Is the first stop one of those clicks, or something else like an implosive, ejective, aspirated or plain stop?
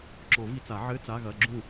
click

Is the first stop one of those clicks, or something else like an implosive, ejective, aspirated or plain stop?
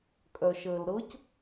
ejective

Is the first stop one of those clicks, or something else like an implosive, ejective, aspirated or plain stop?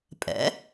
ejective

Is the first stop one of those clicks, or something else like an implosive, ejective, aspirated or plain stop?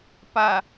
plain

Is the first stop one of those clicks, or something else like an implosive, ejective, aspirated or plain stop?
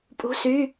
ejective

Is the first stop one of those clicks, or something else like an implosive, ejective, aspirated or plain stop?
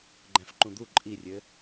click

